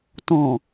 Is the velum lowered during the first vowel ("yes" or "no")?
yes